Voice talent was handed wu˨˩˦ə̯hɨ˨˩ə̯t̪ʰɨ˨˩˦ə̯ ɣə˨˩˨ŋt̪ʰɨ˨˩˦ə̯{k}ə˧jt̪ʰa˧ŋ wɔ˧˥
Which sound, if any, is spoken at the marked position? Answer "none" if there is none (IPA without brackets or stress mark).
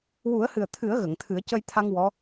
c